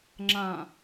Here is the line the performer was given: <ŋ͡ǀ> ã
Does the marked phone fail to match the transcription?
yes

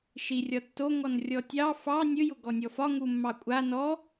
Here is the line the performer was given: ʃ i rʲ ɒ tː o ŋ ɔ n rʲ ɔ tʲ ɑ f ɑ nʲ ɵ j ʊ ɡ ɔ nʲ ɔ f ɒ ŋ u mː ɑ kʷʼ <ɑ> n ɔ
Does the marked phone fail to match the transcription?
yes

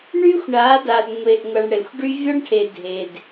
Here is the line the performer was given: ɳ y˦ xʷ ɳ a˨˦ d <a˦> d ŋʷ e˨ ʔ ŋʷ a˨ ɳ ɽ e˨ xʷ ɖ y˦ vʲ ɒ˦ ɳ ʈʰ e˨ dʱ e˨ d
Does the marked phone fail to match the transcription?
yes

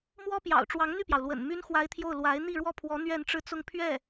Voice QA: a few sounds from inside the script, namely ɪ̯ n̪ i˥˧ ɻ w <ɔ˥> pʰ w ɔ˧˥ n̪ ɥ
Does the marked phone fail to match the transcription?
yes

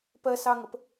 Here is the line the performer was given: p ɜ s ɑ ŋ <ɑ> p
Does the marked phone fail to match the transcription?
yes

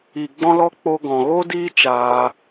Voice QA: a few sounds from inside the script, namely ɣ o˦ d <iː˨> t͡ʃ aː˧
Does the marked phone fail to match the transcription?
yes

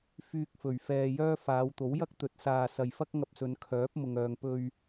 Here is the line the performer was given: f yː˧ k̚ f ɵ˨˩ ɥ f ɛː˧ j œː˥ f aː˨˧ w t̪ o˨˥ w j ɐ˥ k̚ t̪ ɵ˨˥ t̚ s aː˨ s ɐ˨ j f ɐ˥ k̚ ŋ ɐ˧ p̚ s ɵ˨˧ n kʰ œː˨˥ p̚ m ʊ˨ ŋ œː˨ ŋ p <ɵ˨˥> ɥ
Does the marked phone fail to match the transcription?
yes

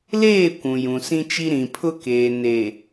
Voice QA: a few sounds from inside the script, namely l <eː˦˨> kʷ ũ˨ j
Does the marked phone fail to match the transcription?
no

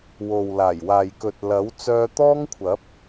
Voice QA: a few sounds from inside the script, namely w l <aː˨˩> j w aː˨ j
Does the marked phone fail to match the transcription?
no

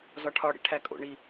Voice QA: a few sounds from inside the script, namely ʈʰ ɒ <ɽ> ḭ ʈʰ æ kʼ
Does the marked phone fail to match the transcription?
no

